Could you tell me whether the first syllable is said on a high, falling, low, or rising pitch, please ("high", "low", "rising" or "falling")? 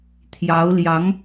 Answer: rising